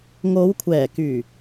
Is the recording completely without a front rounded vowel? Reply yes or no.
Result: no